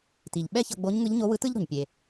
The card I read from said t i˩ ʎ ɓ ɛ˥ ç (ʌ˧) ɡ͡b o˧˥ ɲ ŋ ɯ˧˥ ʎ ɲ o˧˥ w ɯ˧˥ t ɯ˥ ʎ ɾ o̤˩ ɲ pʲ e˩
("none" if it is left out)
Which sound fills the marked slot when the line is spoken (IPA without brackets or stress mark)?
ʌ˧